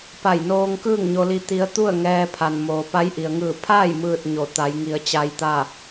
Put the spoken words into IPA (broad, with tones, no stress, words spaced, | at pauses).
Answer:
pa˧˩jnoː˧ŋ kɯː˥˨ŋɲo˧li˧ t̪i˧˥ə̯ t̪u˥˨ə̯ ŋɛː˧pʰa˩n moː˩pa˧˥jʔi˩ə̯ŋɯː˧˩ pʰa˥˨j mɯː˥˨t̚ ɲo˧˩ t̪a˩˧jŋi˩˧ə̯t͡ɕa˧jt̪a˥˨